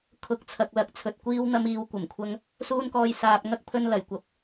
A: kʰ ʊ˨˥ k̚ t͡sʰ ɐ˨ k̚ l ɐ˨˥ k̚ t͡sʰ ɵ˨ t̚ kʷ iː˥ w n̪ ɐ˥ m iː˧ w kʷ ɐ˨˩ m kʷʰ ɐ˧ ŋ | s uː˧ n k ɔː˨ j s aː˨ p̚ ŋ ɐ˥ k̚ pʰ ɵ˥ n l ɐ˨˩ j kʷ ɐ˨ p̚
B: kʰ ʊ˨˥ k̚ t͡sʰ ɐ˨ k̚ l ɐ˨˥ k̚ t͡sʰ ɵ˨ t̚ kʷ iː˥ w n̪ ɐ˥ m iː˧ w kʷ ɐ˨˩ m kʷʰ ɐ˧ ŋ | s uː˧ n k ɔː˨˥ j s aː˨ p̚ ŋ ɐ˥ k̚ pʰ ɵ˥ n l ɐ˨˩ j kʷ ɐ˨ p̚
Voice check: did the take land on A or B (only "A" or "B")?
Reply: A